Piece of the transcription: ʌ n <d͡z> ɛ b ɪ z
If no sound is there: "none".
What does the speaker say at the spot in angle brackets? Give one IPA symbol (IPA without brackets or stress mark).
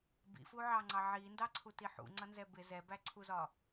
z